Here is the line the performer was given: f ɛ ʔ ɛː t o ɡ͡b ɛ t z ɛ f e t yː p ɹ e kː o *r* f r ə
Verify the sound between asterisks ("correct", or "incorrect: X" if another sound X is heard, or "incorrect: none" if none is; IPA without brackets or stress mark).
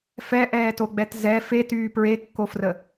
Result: incorrect: none